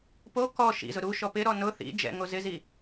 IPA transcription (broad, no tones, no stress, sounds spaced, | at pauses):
p o k ɔ ʃ ḭ z ʊ ɾ u ʃ ɔ p ɪ ɾ ɔ n ʊ θ ḭ d͡ʒ ɛ̰ ŋ o z ɪ z i